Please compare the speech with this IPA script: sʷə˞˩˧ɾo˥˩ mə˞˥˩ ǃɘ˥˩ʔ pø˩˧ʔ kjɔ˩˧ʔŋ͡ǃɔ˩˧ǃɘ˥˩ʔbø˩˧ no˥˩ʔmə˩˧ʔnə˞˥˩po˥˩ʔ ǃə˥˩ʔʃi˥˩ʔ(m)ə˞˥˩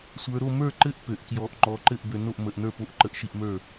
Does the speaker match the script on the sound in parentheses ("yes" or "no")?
yes